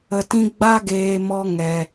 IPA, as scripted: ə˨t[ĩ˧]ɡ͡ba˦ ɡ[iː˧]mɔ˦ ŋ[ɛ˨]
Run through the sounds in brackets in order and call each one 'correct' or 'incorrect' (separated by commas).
correct, incorrect, correct